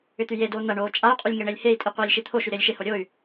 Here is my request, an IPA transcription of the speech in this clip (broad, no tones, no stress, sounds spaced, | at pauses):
ʏ t̪ y j e d oː n̪ ɐ ɳ oː t͡ʃʼ a y̯ qʼ y lʲ ŋ e ɳ e lʲ h e i̯ tʼ i qʷ iː lʲ ʃ i t̪ʰ o ʃ y ɾ ɪː lʲ ʃ ɪ h o ɾʲ o y̯